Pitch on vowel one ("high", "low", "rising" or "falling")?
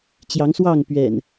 rising